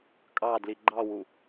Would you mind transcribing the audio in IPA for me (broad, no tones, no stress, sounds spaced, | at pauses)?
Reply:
kʼ ɑ d l i ɡ͡ǃ ɑ w u